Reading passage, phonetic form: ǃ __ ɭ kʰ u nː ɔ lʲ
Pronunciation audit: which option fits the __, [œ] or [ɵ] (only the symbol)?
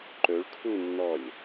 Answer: ɵ